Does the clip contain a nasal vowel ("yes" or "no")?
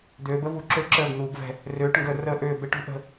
no